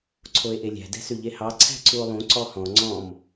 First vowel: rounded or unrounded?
rounded